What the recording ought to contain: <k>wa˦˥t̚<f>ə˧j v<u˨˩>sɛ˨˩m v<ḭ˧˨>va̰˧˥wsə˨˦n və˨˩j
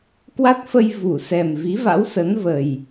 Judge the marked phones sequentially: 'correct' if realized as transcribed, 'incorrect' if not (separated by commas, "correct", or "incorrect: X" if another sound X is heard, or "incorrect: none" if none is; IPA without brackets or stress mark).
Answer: correct, correct, incorrect: u˧˩, incorrect: i˨˦